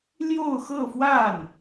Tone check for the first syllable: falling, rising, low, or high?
falling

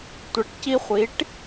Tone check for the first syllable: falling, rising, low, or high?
rising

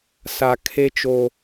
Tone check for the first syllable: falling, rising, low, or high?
low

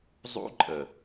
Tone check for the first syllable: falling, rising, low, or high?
high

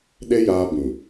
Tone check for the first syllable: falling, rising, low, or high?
high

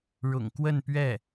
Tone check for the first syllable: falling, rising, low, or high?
low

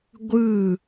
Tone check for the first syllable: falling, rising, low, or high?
falling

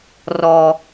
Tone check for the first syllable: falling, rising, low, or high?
low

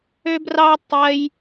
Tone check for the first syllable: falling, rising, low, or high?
high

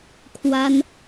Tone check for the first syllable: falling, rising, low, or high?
high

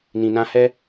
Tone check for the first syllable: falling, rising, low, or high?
low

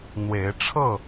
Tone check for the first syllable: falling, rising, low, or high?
rising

